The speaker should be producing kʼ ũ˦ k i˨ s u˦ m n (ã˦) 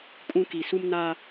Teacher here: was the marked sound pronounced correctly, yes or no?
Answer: no